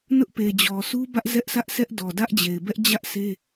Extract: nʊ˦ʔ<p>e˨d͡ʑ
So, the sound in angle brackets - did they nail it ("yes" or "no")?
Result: yes